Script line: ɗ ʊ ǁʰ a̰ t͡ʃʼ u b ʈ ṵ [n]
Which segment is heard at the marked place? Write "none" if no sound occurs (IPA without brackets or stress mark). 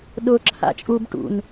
n